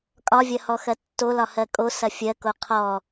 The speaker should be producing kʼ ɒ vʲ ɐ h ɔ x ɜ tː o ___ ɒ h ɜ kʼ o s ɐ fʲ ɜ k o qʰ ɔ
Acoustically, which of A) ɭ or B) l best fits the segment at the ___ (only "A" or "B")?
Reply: B